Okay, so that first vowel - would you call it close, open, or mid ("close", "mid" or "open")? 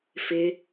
close